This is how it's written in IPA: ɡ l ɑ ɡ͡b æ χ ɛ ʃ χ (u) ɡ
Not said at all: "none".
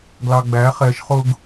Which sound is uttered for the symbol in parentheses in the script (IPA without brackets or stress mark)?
ʊ